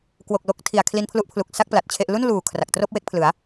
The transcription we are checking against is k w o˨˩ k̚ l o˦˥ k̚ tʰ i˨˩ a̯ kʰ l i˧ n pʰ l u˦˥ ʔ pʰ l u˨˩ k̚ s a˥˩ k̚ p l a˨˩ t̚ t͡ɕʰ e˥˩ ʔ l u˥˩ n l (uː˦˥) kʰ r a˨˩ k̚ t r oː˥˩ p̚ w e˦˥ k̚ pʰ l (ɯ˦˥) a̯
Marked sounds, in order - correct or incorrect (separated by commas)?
incorrect, incorrect